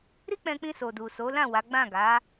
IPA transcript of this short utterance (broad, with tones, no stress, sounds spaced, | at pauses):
ɾ i˦ k͡p ɛ̃˧ k͡p ĩ˧ s o˨ d u˨ s o˨˦ l ã˦˨ w a˨˦ ɡ͡b ã˦˨ ɡ a˨˦